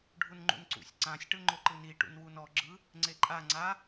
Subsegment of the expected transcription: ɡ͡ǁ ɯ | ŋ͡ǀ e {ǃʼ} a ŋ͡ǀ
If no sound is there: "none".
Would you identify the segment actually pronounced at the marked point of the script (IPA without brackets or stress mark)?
ǃʼ